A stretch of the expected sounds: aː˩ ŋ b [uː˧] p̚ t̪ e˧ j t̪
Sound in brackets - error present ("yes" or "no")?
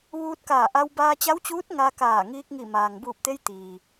yes